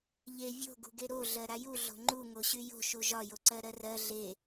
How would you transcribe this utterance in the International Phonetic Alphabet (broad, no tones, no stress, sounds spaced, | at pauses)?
ʎ e vʲ o̤ ɡ ṳ ɡ e ɾ o ɮ ɜ ɾ a j u ɮ o̤ ŋ͡ǃ u ŋ o ɕ y j o̤ ʃ u ʒ ɒ j o ǀ ɜ ɾ ɜ r ɜ ɮ e